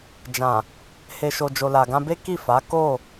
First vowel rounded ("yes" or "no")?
no